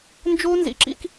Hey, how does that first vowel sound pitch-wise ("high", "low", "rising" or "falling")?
high